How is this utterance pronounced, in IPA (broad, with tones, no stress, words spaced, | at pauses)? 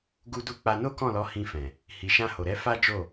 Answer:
ɡu˦du˦ k͡pa˧no˦kɔ̃˦˨lɔ˨˦ hĩ˧fɛ̃˨ | hi˨ʃã˧ho˨ɾɛ˨˦ fa˦d͡ʒo˦˨